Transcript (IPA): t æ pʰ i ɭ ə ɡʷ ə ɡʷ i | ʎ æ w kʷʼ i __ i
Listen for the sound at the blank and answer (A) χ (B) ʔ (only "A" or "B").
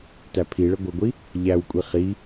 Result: A